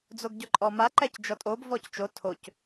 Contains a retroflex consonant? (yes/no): no